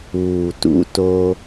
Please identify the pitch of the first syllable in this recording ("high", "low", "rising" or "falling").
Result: low